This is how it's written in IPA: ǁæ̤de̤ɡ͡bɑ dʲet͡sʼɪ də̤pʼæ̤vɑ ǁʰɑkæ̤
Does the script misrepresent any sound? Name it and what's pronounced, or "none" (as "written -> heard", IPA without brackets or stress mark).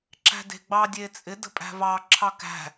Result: none